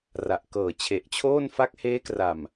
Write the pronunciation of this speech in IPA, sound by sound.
r a˨˩ ʔ k ɤː˨˩ t͡ɕʰ e˨˩ ʔ t͡ɕʰ oː˥˩ n f a˦˥ k̚ h eː˦˥ k r a˨˩ m

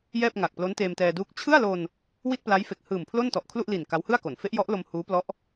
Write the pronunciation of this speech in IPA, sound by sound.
j ɛː˥˩ p̚ ŋ a˨˩ k̚ p l o˦˥ n t eː˧ m t ɛː˧ d uː˦˥ k̚ t͡ɕʰ ɯ˥˩ a̯ l o˧ n | w i˥˩ t̚ p l a˦˥ j f e˨˩ k̚ h ɯː˨˩ m pʰ l o˥˩ n t ɔ˨˩ ʔ kʰ l u˥˩ ʔ l i˨˩ n k a˦˥ w h ɯ˥˩ a̯ k o˩˦ n f e˦˥ ʔ j ɔ˦˥ ʔ l o˧ m h uː˦˥ p l ɔ˦˥ ʔ

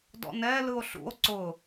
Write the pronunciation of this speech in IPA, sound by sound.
d ɔ̰ n ɛ l ɯ o̯ ɬ ṵ o̯ ǀ ʊ

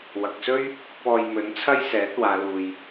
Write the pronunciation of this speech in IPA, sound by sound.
w ɐ˨ k̚ s ɵ˥ ɥ | p ɔː˧ j m ɵ˨˥ n t͡sʰ ɐ˥ j s ɛː˨˥ t̚ w aː˨˧ l uː˨ j

